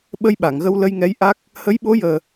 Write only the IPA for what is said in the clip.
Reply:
ɓə˧jɓa˨˩˨ŋɣə˧w lə˧jŋɛ˧˥jʔa˦˥k̚ | hə˧˥jɓo˧˥jəː˨˩

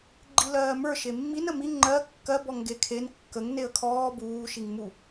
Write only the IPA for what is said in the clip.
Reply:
ɡ͡ǃilɜːmə˞ ʃemːin əmi ŋ͡ǃɜ kːɜ bɔŋɡekʰen kːəŋ neə̯kʰɔː buː ʃiŋmu

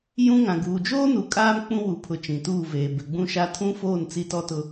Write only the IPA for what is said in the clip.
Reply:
jũ˦ŋã˨ ɡuː˨d͡ʒoː˦nu˨ kʼaː˦m k͡pũ˦wu˨pʰʊ˨ t͡ʃĩ˨tuː˦˨veː˨ bɪ˨ɡ͡bũ˦ʃa˦ tʰũ˦foː˦˨n t͡si˦tɔ˦tʊ˦

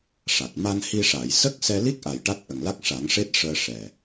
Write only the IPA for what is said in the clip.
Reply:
ʂa˨˩t̚ ma˧nhi˧ʂa˨˩˨j sə˦˥k̚ sɛ˧li˦˥k̚ʔa˨˩j ʈa˦˥t̚ʔə˨˩ŋla˦˥k̚ ʂa˨˩˦ŋʂe˦˥t̚ʂəː˧ ʂɛ˨˩

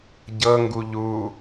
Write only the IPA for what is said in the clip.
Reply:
ɟɤŋɡu ʎu

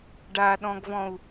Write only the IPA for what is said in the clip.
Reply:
ɖaɗɔ̃ɡvɔ̃u̯

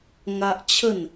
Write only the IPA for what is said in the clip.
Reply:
ŋa˦ʔt͡ɕʰə˥˧n

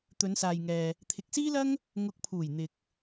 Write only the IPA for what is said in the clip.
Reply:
t̪ɵ˨˧nsaː˨jŋɛː˨ | t̪ʰɪ˨k̚siː˥lɐ˥ŋ | ŋʊ˨˥k̚pʰuː˨˩j n̪ɪ˨k̚

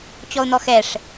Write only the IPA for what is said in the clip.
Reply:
t͡ɕɔʊ̯n̪ɔxɛʂ

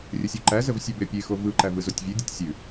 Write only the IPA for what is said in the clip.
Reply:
rʲəsʲuǃæzəv sʲɛbepʲexo vɯǃæ vɯzotʲvʲedʲetʲ sʲʉ

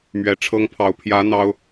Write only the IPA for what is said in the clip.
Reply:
mɥɛ˧˥ʈ͡ʂʰɤ˥ŋpʰɑ˧˥ʊ̯ pʰjä˧˥ n̪ɑ˥ʊ̯

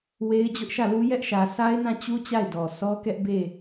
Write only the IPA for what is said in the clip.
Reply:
we˦ɪ̯d͡ʑʊ˦ʔʃä˦˨lu˦ jɛ˦ʔʃä˨ sʰa˦ɪ̯nã˦˨t͡ɕu˦ t͡ɕa˦˨ɪ̯dɔ˨sʰɔ˦kɛ˦ʔ be˦˨

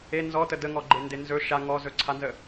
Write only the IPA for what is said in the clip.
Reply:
e nzɔtə dəŋɔ ɡ͡ǃendenzɵ ʃa ŋɔzɵǀʰanzə

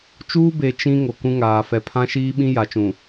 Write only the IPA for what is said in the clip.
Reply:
t͡ʃuː˦ be˨ t͡ʃĩ˦ ŋo˨kũ˦ŋaː˨ fɛ˨pʰã˦ʃiː˦ɓĩ˦ ja˨t͡ʃũ˨

